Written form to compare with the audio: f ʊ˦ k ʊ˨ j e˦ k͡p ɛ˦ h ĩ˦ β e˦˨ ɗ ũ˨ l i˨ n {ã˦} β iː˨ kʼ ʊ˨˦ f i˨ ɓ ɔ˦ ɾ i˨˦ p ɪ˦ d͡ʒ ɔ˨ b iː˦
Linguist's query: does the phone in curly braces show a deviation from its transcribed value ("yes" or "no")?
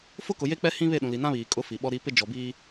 no